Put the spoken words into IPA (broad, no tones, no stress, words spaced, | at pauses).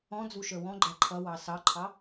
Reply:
ɔ̃ d͡zuʃə˞wɔ̃ɡ͡ǃæ ǃʰʌwɑ sɑǃʰɑ